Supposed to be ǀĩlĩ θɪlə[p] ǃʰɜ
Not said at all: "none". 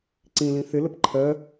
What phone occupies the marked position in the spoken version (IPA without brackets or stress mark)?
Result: p